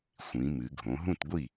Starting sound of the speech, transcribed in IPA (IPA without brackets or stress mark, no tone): xʷ